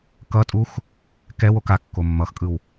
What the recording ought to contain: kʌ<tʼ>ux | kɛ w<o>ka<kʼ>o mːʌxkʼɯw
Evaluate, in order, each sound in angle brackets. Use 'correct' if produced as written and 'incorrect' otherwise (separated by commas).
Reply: correct, correct, incorrect